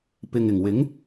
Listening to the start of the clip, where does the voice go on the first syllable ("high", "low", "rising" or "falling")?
low